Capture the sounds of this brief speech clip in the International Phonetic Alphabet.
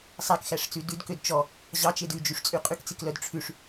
sˤækxæʂt͡sʉ dʉdkød t͡ʃɔ | ʑɑt͡ʃed ʉd͡ʒyʂt͡sʼy qʼykt͡siklœd ʈ͡ʂʰʉʂ

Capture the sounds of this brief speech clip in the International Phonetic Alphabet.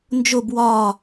nd͡ʒob wɒ

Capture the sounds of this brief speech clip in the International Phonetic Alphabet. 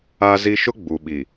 a˦zi˦ ʃʊ˦ ɡ͡bu˨ɓi˨

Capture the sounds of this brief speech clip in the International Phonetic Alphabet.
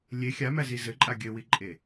lʲe xʲamæzi zɘǃʼa ɡʲɘwiǃʼe

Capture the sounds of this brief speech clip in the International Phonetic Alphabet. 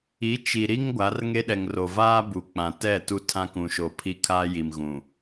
i˨˦ t͡ʃi˨ɾi˦ŋ ɡʷa˨˦rŋe˦ɗɛ˨ŋ ro˨vaː˦ bu˨k͡pã˨ tɛ˦˨ tu˦tʰã˦kũ˨ʃo˨ pʰi˦kʰaː˦ji˨mɣũ˨

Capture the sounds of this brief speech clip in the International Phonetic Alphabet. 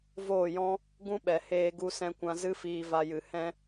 voː˦˨jɔ̃˦ | ɡũ˦ɓɛ˨ heː˧ɡu˧sɛ̃˧kʷã˧ zɨ˦fiː˧va˧jɨ˨ hɛ̃˦

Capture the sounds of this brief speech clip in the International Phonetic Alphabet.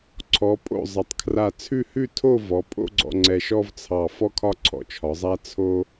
ǀʰɔ˩˧pʼo̰˧˩ zˤɐ˩˧tˤkʰra˧˩ t͡sʰʉ˥˧hʉ˥˧tʰo˥˧ vɔ˩˧pʼo̰˥ɡ͡ǀɔ̰˧ ŋ͡ǀɛ˧ʃɔ˥vt͡sʰɑ˧˩ fɔ˥kʰɒ˥ ǀʰɔ̰˧˩t͡ʃʰɒ˩˧zˤa˥ t͡sʰo˥

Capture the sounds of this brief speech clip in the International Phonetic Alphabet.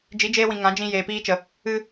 d͡ʒi˨˦d͡ʒeː˧wĩ˨ ŋã˨˦d͡ʒĩ˧ jeː˨piː˦t͡ʃə˨ | ɨ˧

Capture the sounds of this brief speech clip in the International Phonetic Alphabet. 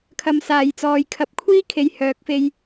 kʰɐ˧msaː˨jt͡sɔː˨˧j kʰɐ˨p̚kʷʰiː˥ kʰe˧jhœː˨˥k̚fe˧j

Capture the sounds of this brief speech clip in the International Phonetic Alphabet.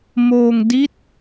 moː˧ŋdi˦˥t̚

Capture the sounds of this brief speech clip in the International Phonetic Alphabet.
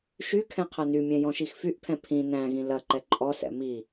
ʃy kʰɛ̃qʰɐnymʲɛ̃ jɔ̃ʃixfyʔpʰɛ̃ pʰĩ næ̃ɣĩ lɐ ǃɛǃʼɔsɛ̰ mi

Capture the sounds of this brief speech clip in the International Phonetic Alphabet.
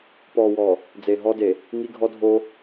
pɔː˨wɔː˨ | d͡ze˨ɦɔ˦de˨ | ŋi˦ɡʱɔ˦dʱoː˦

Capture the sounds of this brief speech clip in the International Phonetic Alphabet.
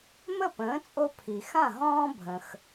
mə˥˩pə̃ː˩˥t͡sʼo˧ pʰi˩xã˥˩ ɦɔ̃ː˥ bʱə̃˩x

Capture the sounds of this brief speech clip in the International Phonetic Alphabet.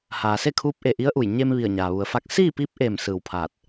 haː˩se˥˨kʰuː˧˥p̚ʔe˧˩ ʔi˧˥ə̯ʔu˧˩j ɲe˧m ʋi˧˩ə̯ɲaː˩ʋu˩˧ə̯fa˧˥k̚ siː˥˨piː˧˥p̚ʔeː˧˩m sɯː˧˩wpʰaː˧˩t̚

